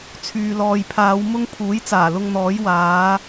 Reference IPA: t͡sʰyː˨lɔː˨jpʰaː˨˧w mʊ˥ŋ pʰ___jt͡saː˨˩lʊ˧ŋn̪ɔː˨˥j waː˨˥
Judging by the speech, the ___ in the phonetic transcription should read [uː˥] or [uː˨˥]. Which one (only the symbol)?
uː˨˥